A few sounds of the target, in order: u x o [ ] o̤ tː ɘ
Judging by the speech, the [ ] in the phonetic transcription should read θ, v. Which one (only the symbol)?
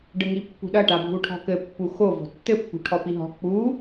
v